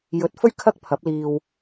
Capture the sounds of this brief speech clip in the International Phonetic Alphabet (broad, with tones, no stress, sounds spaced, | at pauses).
j ɵ˨˥ t̚ f ɵ˥ ɥ kʰ ɐ˥ k̚ pʰ ɐ˨˥ p̚ l iː˧ w